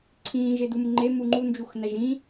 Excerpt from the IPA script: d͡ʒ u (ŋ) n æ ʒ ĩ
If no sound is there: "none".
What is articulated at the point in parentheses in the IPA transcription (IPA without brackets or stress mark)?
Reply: x